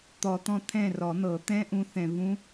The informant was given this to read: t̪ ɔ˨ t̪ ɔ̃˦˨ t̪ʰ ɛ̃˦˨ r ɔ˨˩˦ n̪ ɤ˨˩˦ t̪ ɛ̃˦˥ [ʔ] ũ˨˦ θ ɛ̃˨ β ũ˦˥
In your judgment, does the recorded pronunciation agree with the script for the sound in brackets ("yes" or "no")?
yes